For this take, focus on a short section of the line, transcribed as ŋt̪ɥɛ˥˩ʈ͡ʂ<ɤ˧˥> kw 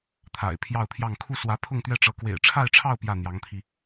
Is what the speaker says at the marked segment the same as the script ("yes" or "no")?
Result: yes